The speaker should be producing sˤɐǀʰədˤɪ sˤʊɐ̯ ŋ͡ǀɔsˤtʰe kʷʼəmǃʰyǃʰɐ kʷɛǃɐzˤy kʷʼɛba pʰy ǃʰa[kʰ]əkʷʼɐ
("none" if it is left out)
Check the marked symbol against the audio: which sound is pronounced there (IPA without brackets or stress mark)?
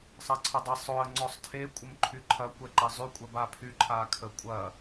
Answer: kʰ